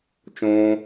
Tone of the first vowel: high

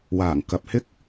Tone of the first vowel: low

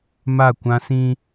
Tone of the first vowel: falling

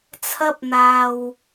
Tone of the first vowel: high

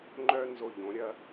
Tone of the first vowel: high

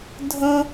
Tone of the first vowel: high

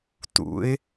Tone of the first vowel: rising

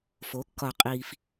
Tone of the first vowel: rising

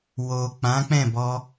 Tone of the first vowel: low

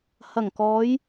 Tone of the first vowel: low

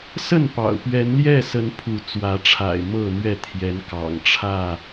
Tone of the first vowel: falling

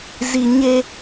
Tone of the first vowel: low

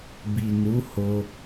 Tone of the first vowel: low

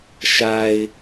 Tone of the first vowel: low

